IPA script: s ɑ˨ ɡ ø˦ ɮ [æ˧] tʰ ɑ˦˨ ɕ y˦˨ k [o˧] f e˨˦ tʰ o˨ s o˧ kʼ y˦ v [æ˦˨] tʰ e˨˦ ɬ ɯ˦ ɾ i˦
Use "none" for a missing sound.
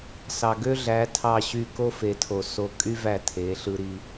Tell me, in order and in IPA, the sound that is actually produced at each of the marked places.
æ˨˦, o˦, æ˦˨

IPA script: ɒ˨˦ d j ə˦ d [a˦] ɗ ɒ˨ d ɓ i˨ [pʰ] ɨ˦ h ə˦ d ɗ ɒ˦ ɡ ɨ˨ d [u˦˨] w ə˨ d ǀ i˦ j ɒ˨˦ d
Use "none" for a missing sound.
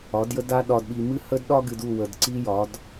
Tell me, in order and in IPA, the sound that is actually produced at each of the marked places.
a˦, m, u˦˨

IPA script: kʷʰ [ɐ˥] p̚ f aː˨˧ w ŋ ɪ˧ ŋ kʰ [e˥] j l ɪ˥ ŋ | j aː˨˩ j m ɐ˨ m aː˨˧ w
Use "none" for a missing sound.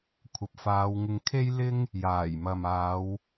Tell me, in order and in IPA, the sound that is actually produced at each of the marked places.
ɐ˨, e˥

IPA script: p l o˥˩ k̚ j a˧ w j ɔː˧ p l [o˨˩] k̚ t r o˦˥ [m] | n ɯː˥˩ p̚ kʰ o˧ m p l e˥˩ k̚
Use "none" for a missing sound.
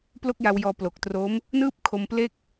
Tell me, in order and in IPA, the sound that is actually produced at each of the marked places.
o˨˩, m

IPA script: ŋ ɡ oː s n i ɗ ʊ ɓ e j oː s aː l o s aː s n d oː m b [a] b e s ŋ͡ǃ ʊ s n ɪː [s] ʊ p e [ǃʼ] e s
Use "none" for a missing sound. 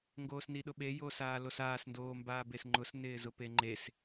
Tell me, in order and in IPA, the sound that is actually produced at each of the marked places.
aː, z, ŋ͡ǃ

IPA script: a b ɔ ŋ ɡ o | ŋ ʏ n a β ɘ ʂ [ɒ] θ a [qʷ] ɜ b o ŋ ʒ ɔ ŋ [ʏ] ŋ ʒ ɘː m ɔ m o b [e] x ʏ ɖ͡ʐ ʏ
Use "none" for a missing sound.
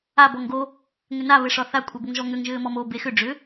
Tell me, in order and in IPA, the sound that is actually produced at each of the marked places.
ɒ, kʷʼ, ʏ, e

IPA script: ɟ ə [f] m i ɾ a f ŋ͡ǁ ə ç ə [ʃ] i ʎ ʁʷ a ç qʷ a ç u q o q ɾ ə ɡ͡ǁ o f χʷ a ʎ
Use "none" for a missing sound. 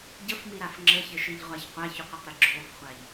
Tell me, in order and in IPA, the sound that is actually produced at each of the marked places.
f, ʃ

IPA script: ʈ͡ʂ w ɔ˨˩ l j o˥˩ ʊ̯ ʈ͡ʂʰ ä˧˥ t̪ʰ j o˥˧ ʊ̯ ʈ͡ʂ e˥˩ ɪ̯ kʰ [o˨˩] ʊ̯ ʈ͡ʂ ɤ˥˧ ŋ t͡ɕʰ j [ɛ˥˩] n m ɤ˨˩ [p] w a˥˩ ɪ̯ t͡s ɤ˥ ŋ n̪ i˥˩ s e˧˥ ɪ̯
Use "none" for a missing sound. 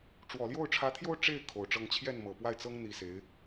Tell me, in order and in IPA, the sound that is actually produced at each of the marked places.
o˨˩, ɛ˥˩, p

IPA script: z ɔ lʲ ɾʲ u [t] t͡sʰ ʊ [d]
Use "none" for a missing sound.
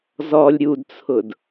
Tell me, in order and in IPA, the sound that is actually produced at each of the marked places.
d, d

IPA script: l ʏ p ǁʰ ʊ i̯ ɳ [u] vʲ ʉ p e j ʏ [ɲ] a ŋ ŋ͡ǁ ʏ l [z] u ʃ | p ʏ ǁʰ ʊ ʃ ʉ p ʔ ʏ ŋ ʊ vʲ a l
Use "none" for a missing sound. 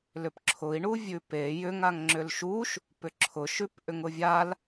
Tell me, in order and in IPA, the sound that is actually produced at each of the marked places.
u, ŋ, ʃ

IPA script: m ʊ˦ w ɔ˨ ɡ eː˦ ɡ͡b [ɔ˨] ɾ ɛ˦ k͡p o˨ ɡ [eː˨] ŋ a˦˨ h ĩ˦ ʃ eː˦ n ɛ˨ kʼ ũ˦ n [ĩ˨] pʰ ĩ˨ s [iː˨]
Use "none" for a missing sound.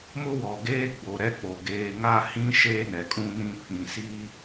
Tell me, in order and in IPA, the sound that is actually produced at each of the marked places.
o˨, eː˨, ĩ˦˨, iː˦

